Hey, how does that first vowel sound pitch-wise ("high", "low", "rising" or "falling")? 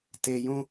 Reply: low